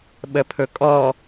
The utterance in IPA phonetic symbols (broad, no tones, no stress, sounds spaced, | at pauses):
ɓ ə pʰ ɵ kʼ ɔ